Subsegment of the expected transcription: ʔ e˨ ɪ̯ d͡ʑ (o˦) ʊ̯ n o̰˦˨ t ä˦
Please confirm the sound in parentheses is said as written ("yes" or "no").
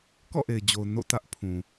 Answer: no